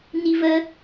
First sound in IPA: n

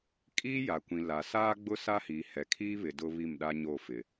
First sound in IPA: kʼ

